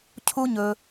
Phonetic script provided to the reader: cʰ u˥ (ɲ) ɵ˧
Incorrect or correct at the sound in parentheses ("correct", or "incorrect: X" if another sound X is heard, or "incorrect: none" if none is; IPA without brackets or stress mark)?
correct